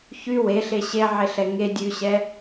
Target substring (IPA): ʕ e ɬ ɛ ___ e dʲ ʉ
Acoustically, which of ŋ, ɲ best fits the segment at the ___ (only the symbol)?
ŋ